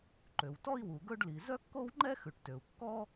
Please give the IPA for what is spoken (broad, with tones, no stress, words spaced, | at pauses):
ǃø˩w tɔ˥i̯wu˩ ɡɵ˥ɖli˩ zœ˥kːo˥wŋ͡ǃɛ˥ xʉ˩ʈtø˩u̯ kːɔ˥